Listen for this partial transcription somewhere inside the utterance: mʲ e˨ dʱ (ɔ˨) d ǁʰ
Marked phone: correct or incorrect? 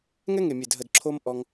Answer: incorrect